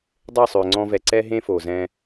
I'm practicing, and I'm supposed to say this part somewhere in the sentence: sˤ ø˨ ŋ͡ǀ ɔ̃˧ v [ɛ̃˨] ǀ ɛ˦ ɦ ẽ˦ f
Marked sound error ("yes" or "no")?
yes